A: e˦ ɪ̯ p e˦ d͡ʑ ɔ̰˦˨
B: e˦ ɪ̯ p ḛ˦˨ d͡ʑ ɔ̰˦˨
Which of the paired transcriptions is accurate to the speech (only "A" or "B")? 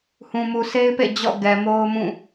B